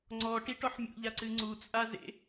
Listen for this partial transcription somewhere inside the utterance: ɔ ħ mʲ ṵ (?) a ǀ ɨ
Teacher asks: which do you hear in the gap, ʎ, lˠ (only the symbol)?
ʎ